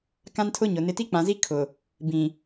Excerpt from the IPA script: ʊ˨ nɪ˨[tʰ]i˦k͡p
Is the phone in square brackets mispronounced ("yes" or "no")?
yes